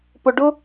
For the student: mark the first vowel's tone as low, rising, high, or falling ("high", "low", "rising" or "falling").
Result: low